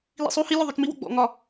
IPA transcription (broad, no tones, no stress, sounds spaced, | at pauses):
l ḭ sˤ u h i lʲ o ðˤ o t͡ʃ m i w o̰ ɡ͡b ɔ̰ ŋ ɒ